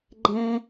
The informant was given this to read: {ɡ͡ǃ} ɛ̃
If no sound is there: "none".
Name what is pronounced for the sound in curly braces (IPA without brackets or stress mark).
ɡ͡ǃ